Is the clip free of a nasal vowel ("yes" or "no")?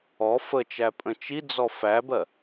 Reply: no